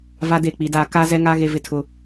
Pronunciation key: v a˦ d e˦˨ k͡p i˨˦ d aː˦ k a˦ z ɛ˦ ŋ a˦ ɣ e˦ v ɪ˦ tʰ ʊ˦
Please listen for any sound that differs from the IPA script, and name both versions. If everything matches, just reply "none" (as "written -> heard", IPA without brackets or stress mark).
none